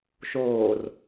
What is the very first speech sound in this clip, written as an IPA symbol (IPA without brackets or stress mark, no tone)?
ʃ